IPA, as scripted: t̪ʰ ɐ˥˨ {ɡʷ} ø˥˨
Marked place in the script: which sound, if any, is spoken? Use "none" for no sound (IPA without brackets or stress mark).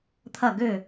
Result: ɡ